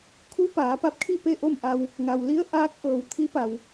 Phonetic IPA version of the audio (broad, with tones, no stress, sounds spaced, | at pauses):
kʰ u˧˥ p aː˩˧ p a˧ p̚ kʰ i˥˨ p e˥˨ ʔ o˥˨ m ʔ a˧ w | ŋ a˩ w l i˧˥ ə̯ ʔ aː˧˥ k̚ ʔ ɤː˩ w t̪ʰ i˧˥ p a˩ w